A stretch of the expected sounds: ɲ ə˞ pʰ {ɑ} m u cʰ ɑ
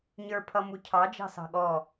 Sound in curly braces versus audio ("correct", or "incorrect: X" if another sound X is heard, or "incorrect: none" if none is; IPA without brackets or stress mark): incorrect: ʌ